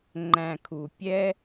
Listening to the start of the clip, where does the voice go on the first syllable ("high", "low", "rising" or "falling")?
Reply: low